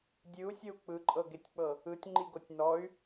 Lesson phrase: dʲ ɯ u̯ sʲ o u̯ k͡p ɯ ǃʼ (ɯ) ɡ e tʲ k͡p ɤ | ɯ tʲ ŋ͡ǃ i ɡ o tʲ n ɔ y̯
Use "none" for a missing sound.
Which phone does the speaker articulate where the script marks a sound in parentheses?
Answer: ɤ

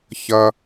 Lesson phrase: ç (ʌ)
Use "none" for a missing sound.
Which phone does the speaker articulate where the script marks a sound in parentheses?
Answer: ʌ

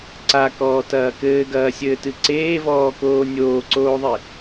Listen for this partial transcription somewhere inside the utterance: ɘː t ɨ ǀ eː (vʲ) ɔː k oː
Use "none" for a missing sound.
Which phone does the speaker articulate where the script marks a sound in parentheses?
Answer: v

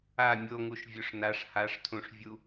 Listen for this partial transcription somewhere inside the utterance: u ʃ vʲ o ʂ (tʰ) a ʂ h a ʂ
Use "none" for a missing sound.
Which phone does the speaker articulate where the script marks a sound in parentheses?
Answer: n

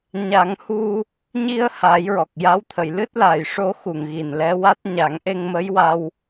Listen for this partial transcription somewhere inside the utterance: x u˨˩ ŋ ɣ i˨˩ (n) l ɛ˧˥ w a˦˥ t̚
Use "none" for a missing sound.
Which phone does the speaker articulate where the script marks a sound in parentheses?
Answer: n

